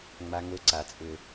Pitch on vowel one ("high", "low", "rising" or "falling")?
high